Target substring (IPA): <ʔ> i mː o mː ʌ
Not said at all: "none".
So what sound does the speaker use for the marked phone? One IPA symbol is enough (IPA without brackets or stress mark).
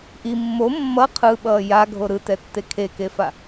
ʔ